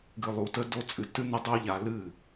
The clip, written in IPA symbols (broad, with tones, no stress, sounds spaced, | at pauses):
ɡ ɨ˧ lˠ u˧ t ə˦ d o˦ t͡sʼ ɨ˧ t ɨ˦ n ə˦ dˤ o˦ ʎ a˧ l ɨ˦˨